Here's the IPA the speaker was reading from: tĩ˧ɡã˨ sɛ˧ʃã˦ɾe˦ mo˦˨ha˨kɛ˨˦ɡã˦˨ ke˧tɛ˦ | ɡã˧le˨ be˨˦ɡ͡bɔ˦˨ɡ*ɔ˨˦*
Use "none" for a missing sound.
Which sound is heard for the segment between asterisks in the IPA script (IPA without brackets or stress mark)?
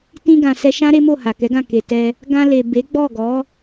ɔ˨˦